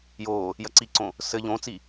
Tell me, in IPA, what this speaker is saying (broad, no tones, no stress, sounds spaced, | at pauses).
j oː | j ɐ ǀ i ǀ õ | s ɘ ʎ õ t͡s i